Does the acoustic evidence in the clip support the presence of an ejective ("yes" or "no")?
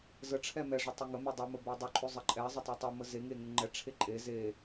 yes